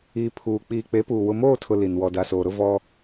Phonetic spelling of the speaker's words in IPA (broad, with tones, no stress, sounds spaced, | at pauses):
iː˨ pʰ uː˨ k͡p iː˨ k͡p e˨˦ p uː˨ w ʊ˨ m oː˦˨ tʰ ʊ˨ l i˨ n w ɔ˨ d a˨ s oː˨ ɾ ʊ˦ v ɔ˦